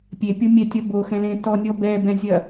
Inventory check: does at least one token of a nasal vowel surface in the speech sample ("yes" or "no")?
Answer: yes